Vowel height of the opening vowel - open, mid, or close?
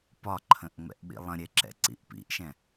open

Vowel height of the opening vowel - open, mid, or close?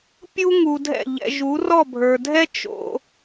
close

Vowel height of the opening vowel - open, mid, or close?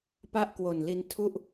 open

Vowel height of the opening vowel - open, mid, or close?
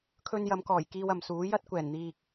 mid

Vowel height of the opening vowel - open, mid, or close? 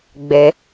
mid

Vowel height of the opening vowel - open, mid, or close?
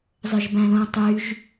mid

